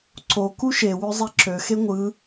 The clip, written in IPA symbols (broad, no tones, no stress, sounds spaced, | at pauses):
ǀ o k u ʃ e w ø zˤ e ǁ ø x e ŋʷ ɯ